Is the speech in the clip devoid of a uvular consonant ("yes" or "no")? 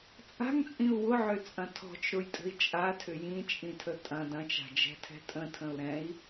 yes